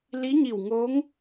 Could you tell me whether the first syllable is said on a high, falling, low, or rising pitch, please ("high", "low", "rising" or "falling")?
rising